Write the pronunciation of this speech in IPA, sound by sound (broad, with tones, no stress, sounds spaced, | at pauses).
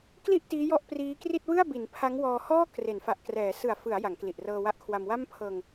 k l i˥˩ ʔ t iː˦˥ j ɔ˥˩ ʔ p r iː˦˥ k r i˥˩ t̚ w ɯ˥˩ a̯ b i˩˦ n pʰ a˦˥ ŋ w ɔː˧ h ɔː˥˩ k r e˩˦ n f a˨˩ ʔ k r ɛː˩˦ s ɯ˨˩ a̯ f ɯ˩˦ a̯ j a˩˦ ŋ k l i˨˩ ʔ r ɤː˧ w a˦˥ ʔ kʰ w a˧ m w a˥˩ m pʰ ɤː˧ ŋ